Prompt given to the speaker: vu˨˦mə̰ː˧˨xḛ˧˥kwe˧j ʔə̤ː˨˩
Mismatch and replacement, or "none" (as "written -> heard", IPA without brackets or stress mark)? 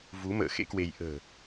none